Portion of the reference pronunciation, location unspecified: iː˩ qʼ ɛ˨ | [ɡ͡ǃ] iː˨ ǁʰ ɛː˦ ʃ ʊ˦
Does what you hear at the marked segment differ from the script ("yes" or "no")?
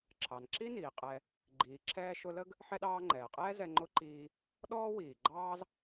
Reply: no